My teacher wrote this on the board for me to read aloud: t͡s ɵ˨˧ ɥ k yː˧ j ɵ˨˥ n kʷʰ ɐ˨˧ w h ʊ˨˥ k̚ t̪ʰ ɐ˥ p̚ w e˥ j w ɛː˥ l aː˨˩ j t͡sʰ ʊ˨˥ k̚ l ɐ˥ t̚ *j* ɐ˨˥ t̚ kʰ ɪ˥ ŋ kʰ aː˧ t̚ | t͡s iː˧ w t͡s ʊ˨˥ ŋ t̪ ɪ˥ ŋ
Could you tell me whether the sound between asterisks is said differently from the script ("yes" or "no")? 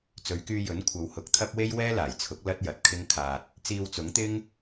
no